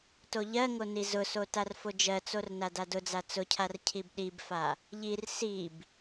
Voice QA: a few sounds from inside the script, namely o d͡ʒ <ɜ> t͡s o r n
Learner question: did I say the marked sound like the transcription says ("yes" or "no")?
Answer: yes